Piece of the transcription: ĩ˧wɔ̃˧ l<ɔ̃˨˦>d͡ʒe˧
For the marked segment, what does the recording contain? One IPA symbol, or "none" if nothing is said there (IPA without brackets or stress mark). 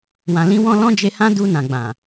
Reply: ɔ̃˦